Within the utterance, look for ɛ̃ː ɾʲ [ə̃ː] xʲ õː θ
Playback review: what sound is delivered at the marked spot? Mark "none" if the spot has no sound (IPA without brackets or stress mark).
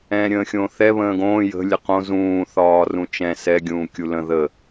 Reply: ə̃ː